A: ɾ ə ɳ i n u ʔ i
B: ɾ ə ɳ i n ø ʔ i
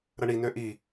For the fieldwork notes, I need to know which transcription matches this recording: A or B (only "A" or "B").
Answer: B